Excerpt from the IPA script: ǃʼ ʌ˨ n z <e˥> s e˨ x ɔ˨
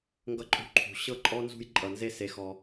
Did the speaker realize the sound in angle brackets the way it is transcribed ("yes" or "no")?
no